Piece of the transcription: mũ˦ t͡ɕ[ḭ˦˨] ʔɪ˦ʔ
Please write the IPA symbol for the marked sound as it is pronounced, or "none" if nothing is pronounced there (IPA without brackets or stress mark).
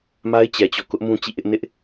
ḭ˦˨